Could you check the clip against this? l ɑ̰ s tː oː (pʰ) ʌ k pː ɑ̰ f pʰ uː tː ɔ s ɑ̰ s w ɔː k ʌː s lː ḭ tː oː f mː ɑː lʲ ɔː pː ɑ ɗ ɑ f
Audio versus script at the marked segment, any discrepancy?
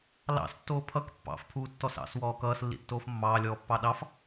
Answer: no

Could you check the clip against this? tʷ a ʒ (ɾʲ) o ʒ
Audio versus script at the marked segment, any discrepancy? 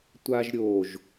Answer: no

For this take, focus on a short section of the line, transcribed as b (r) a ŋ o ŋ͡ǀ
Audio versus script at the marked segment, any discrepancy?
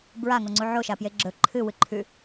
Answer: yes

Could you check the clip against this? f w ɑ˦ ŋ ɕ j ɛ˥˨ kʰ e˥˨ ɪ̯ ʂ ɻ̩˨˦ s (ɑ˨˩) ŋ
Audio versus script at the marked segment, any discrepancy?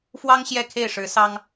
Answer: yes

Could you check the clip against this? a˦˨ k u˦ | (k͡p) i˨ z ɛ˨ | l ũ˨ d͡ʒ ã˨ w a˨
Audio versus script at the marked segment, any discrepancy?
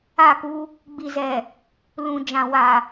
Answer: yes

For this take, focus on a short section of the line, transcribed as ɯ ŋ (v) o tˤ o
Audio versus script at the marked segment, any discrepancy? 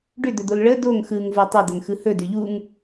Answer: no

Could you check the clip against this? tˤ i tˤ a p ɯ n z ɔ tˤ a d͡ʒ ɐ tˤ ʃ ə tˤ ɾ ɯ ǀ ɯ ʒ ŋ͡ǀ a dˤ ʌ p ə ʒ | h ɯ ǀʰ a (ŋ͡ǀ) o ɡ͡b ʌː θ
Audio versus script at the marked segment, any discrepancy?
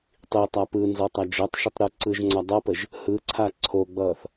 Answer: yes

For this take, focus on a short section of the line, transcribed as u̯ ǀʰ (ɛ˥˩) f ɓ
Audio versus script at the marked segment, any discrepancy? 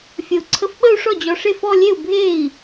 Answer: yes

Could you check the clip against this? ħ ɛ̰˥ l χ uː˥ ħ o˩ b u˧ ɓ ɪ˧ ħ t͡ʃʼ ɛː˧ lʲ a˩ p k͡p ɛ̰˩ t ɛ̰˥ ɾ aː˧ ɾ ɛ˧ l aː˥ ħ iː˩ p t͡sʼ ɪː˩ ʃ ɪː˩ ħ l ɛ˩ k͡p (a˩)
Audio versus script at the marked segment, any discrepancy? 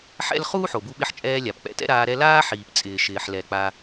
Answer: no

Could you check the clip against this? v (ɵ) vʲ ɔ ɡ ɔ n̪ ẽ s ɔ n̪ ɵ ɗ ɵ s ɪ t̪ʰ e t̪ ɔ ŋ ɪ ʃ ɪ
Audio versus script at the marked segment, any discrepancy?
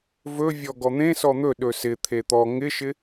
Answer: no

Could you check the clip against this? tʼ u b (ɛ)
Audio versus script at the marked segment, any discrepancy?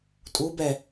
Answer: no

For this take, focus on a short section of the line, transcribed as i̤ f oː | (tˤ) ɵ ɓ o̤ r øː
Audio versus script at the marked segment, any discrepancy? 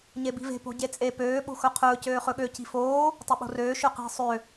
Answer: no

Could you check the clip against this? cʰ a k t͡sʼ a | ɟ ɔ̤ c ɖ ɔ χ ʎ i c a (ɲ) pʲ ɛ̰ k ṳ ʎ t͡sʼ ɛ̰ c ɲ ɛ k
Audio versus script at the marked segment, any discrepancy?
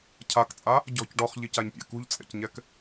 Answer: no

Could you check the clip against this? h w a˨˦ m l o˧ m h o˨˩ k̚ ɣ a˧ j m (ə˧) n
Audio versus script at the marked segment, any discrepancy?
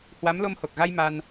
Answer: yes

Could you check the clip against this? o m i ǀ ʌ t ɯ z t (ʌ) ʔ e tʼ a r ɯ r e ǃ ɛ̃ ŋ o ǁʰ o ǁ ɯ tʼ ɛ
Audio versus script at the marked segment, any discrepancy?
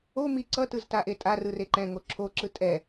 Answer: yes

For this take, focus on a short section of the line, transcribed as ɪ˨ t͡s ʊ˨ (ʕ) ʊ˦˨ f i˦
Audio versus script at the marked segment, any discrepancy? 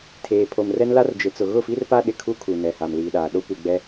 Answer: yes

